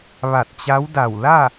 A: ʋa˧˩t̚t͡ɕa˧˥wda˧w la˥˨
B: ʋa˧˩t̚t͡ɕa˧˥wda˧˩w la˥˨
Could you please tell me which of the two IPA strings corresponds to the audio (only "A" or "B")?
B